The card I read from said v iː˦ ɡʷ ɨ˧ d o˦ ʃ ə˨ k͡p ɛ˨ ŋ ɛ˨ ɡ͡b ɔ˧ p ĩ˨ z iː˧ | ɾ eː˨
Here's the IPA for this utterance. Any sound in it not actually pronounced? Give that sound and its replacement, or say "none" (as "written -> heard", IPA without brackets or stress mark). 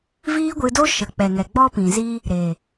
none